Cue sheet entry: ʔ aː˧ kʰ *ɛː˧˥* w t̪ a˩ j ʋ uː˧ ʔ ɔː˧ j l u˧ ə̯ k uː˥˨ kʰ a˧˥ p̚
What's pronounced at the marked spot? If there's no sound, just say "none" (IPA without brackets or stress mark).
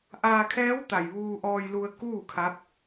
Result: ɛː˧˥